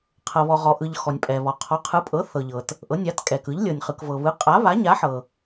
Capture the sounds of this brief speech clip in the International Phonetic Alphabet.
qʰ ɤ˩ β ɔ˩ ʁ ɔ˩ ʔ ɯ˩ ʎ x ɔ˩ nʲ pʼ ɛ˩ β ɔ˩ qʰ ɔ˩˥ qʰ ɯ˩˥ pʼ ɤ˩˥ θ ɤ˩ ʎ ɤ˩ t | ʔ ɤ˩˥ nʲ a˩˥ t kʼ ɛ˩ k ɯ˩˥ ʎ lʲ ɤ˩ nʲ χ ɯ˩ k v ɤ˩ β ɯ˩˥ qʼ a˩˥ β a˩˥ ɲ a˩˥ ħ ɤ˩

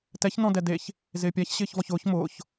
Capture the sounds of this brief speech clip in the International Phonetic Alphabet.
t ɛ ç n ɔ̃ d ɛ d e ç | z ɪː pʲ a ç ɕ ɪː ç v ɔ ç ʊː ç m ʊː ç

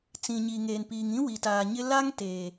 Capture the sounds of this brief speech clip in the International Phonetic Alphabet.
t͡s ĩ˨ ɲ i˨ ŋ eː˨ n p iː˨ ŋ ĩ˦ w i˨ t aː˨ ɲ ɪ˦ l a˦ ŋ t eː˨

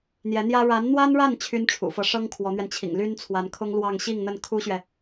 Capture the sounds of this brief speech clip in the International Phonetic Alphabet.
n̪ j ɛ˧˥ n̪ j ä˥ ɻ a˧˥ n n̪ w a˥ n ɻ a˥˩ n t͡ɕʰ y˥ n ʈ͡ʂʰ ṵ˨˩ f ɤ˧˥ ʂ ɤ˥ ŋ kʰ w ɔ˧˥ n̪ ɥ ɛ˧ n t͡ɕʰ ḭ˨˩ ŋ l y˥ n t͡sʰ w a˧˥ n kʰ ʊ˥ ŋ l w ɑ˥˧ ŋ ɕ i˥˧ ŋ n̪ ə˥˩ n kʰ u˥ ɕ ɥ ɛ˨

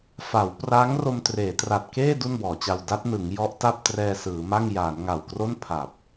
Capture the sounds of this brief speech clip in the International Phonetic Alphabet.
f a˩˦ w p r a˦˥ ŋ r o˧ m t r eː˩˦ t r a˨˩ t̚ k eː˥˩ d u˥˩ n b ɔː˩˦ t͡ɕ a˧ w d a˦˥ t̚ n ɯ˩˦ ŋ j ɔ˦˥ ʔ t a˥˩ p̚ t r ɛː˧ s ɯː˩˦ m a˥˩ ŋ j aː˩˦ n ŋ a˨˩ w k r o˥˩ n pʰ a˨˩ p̚

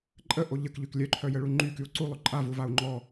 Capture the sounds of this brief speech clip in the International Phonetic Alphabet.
ǃʼ ə ʔ o ʎ ə k ʎ y k lʲ œ ǃʰ œ j ə ɭ u ŋ͡ǃ y k y u̯ ǀ u lˠ ø ǃʼ a v u v a u̯ ŋ͡ǃ ɔ

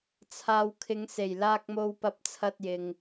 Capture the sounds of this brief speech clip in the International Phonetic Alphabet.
t͡sʰ aː˨ w kʰ ɪ˨˧ ŋ s e˨˩ j l aː˧ k̚ m o˧ w p ɐ˧ p̚ t͡sʰ ɐ˧ t̚ j ɪ˨ ŋ

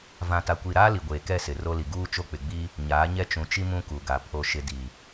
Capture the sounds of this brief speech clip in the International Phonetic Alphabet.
v ã˨ t a˨ kʷ i˨ ɾ aː˦ l i˨ ɡʷ eː˨ k ɛ˦˨ s ɪ˨ r o˦ l i˨ ɡ uː˦ t͡ʃ o˦ k͡p ɪ˨ ɡ͡b i˦ | ɲ aː˨˦ ɲ ɛ˦ t͡ʃ ũ˨ t͡ʃ i˦ m ũ˦ k u˨ ɡ a˨ pʰ o˨ ʃ ɪ˨ d i˨

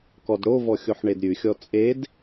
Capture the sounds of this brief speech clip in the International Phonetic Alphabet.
k ɔ d ɽ o v ɔ xʲ o ħ ɳ e d ɾʲ ʉ xʲ ɔ t͡sʼ e d

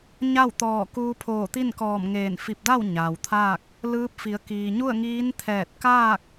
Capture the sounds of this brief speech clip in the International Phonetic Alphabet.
ɲ a˥˨ w t̪ ɔː˧˩ k uː˧ pʰ oː˧˩ t̪ i˥˨ n k ɔː˧˩ m ŋ eː˧˩ n f i˧˩ p̚ d a˥˨ w ɲ aː˩ w t̪ʰ aː˥˨ k̚ | l ɯː˧˥ p̚ f i˩˧ ə̯ k iː˩ ɲ u˥˨ ə̯ ŋ iː˧˥ n t̪ʰ ɛː˧˩ t̚ k aː˥˨ k̚

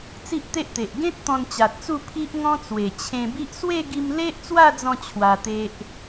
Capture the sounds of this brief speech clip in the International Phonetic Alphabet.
t͡s i˦ ʔ t̪ e˦ ʔ t̪ e˨ ʔ ɡ ẽ˦ t̚ t̪ ɔ̃˧ n t͡ɕ a˨ t̚ t͡s u˥˧ pʰ i˦ ʔ ŋ ɔ̃˦ t͡s w e˨˩ t͡ɕʰ ẽ˧ b i˦ ʔ s w e˥˧ ɡ i˧ m l e˦ ʔ t͡s w a˥˧ d͡z ɔ̃˥˧ t͡ɕʰ w a˧ t̪ e˦ ʔ

